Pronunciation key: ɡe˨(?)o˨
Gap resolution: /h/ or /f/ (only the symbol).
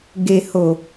h